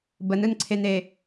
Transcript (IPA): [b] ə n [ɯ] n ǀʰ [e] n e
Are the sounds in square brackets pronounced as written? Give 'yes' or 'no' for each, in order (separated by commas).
yes, yes, yes